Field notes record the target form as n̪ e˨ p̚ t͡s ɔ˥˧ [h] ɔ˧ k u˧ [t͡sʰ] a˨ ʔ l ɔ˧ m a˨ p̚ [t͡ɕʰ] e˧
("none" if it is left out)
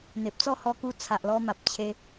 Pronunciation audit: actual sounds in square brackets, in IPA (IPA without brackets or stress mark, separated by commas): h, t͡sʰ, t͡ɕʰ